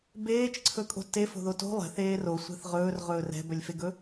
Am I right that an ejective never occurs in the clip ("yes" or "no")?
no